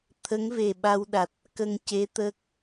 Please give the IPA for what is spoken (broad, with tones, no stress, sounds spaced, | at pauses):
t̪ʰ ə˧˥ ŋ v e˨˩ ɓ a˧ w ɗ a˨˩ t̚ | k ə˧ ŋ c e˧˥ t̪ əː˦˥ k̚